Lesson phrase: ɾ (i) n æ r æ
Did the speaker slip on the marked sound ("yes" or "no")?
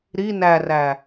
no